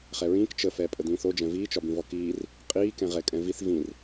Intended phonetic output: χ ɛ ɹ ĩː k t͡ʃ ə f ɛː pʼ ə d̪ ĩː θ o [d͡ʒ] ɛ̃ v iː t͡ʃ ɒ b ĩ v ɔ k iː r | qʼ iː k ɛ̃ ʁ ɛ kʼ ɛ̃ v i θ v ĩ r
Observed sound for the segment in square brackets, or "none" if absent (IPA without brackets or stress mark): d͡ʒ